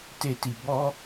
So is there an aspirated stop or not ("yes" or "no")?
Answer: no